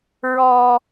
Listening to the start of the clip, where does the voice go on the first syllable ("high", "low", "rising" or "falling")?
high